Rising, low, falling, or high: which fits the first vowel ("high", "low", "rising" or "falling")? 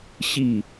falling